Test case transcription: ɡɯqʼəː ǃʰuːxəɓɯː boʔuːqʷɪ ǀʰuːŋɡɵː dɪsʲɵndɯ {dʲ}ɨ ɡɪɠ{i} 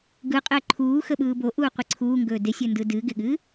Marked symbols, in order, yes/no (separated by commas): no, no